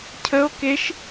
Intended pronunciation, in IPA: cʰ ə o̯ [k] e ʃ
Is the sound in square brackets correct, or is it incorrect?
correct